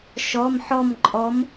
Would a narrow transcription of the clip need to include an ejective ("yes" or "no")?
yes